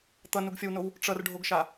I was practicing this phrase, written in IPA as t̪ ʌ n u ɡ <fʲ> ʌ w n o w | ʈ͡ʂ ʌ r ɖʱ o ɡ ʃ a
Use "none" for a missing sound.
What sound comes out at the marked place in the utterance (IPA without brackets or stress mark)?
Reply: fʲ